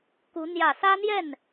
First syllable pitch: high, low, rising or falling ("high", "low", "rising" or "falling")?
rising